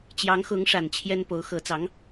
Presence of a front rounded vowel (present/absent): absent